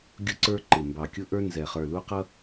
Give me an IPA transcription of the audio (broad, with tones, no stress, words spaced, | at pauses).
ɡʲʊ˦ ǀə˞˦ ǃɪ˨˩ mbɑ˨˩kʲʊ˦ʔə˞˦ nzɛ˨˩ χə˞˨˩lu˦qʌ˦